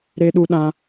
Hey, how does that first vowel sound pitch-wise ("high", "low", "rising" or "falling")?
high